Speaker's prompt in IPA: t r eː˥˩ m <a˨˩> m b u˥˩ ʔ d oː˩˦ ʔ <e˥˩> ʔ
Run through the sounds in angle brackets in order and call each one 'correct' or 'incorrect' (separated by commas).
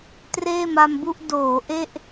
incorrect, correct